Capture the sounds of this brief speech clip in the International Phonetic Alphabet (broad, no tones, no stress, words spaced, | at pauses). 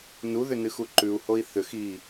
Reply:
nuðʏnɨxu ǃʉu̯hoi̯ θʏx i